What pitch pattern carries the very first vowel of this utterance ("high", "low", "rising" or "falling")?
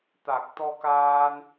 low